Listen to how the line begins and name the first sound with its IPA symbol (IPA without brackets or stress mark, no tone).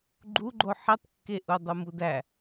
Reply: ɡ͡ǃ